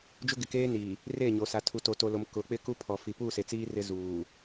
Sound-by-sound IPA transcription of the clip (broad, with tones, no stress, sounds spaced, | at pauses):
d͡ʒ ʊ˦ ɡ ɪ˨ k eː˦ n iː˨ | r e˦˨ ɲ o˨ s a˨ tʰ u˨ t o˨ t o˨ l o˨ m k ʊ˨˦ k͡p ɪ˦ k u˦ pʰ ɔ˨ f i˨ p uː˦˨ s e˨ t͡s iː˦ r ɪ˦ z uː˨